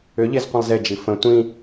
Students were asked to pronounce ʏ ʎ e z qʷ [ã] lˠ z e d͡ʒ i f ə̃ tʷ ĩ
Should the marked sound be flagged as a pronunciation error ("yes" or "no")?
yes